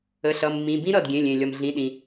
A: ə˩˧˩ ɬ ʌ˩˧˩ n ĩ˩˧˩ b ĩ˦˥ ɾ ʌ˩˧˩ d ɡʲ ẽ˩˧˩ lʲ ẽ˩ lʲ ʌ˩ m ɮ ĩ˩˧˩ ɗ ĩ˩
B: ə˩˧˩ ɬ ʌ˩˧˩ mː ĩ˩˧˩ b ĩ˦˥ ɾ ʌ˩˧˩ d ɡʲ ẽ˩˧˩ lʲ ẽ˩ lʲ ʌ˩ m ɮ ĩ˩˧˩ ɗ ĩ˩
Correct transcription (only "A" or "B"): B